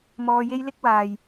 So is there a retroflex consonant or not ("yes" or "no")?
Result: no